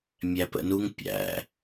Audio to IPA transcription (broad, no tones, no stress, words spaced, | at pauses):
mʲæpə̰nuŋ pʲæ̰